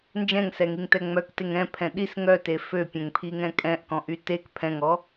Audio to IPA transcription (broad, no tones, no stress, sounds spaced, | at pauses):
n d͡ʒ ɛ̃ ŋ s ɛ ŋ i ŋ t ɛ ŋ͡m œ k t e ŋ ɛ̃ pʰ ɛ̃ ɗ i s ŋ œ t e f ø pʲ ɛ̃ ŋ pʰ i ŋ ɛ̃ kʼ ɛ̃ ʔ k ɔ̃ ʔ y t e k pʰ ɛ̃ ŋ ɔ